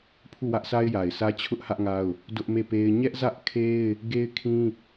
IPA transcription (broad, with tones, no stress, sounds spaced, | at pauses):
pʰ u˦˨ w ä˦ ʔ sʰ a˦ ɪ̯ j a˨ ɪ̯ s ä˦ t͡ɕʰ ʊ˦ ʔ h ä˦ ʔ ŋ a˦ ʊ̯ | d ʊ˦ ʔ m e˦˨ p e˦ ɪ̯ ɲ ɛ˦ ʔ z ä˦ ʔ kʰ e˦ ɪ̯ | ɡ e˦ ɪ̯ kʰ ĩ˦